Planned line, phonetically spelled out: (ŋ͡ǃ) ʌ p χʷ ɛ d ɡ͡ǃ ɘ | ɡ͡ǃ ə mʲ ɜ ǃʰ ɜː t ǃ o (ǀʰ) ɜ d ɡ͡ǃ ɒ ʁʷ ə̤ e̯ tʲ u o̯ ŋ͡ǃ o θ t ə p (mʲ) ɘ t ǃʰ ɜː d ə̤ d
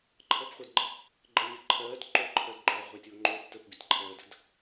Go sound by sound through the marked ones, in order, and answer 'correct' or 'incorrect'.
incorrect: ǃʰ, incorrect: ǃʰ, incorrect: bʲ

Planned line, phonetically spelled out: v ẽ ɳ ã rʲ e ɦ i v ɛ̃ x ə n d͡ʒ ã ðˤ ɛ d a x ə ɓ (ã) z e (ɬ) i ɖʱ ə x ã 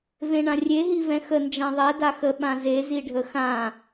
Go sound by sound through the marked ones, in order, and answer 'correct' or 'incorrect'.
correct, incorrect: z

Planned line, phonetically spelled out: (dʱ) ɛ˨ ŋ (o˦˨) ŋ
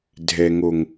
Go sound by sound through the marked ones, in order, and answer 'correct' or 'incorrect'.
correct, incorrect: o˨

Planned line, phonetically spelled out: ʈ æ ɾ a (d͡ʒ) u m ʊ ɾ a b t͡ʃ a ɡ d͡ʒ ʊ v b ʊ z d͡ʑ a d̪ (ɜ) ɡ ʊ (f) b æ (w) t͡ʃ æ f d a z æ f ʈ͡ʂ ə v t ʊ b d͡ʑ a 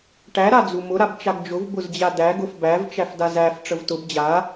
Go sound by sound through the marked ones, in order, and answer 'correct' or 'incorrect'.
incorrect: d͡z, incorrect: æ, correct, incorrect: v

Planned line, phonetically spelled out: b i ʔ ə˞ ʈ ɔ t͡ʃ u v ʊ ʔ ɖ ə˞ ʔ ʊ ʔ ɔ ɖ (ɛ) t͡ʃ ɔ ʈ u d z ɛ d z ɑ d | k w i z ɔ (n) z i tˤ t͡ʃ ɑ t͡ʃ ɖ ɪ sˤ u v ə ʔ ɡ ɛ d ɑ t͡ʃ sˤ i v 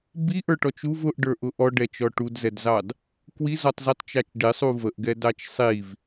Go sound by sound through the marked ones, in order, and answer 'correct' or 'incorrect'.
correct, incorrect: tˤ

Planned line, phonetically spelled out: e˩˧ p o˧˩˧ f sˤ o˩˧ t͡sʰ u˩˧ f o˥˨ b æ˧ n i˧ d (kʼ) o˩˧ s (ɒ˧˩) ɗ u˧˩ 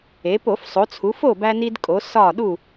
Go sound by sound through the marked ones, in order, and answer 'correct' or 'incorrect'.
correct, correct

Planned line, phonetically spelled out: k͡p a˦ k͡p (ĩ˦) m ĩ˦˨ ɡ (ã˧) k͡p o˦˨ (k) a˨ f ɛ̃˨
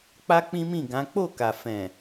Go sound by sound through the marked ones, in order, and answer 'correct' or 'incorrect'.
correct, incorrect: ã˨˦, correct

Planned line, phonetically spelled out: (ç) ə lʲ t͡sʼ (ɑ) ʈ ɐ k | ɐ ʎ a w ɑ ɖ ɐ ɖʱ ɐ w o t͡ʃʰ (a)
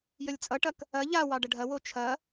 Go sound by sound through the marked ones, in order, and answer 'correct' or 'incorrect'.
incorrect: j, incorrect: ʌ, incorrect: ɐ

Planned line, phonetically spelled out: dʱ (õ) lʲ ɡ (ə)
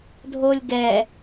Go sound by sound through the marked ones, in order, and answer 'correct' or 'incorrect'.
incorrect: o, incorrect: ɛ

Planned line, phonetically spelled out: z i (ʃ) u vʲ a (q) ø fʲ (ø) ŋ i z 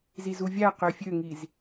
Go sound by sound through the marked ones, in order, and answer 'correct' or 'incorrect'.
incorrect: z, correct, correct

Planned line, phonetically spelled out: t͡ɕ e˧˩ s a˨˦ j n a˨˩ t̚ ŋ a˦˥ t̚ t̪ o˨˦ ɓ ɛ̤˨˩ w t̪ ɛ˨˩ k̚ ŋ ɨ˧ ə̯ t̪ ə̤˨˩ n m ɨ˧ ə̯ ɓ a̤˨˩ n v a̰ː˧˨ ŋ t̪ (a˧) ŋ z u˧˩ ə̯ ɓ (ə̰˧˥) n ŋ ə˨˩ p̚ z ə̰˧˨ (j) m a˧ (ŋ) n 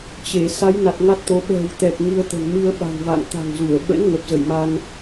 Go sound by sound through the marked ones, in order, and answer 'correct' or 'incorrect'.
incorrect: a̤˨˩, correct, correct, incorrect: none

